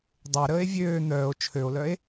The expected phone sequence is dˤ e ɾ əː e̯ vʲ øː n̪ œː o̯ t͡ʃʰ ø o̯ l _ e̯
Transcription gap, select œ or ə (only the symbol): œ